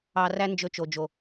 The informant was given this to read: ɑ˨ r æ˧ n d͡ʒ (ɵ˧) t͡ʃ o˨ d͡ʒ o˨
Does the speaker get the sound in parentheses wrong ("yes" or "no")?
no